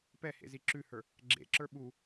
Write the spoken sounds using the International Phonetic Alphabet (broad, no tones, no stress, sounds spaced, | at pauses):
p ɛ h ḛ z i ǁ ʉ h ə˞ | ɡ͡ǁ ḛ ǁ ə˞ ɓ u